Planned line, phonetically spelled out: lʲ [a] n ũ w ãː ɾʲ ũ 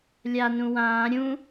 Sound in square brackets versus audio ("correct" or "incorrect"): correct